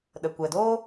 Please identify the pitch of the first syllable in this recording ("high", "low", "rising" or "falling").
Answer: low